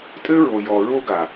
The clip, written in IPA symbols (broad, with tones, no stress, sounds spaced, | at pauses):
tʼ ɘ˦ ɹ o˨ j ɔ˨ ɹ o˦ ɡ a˨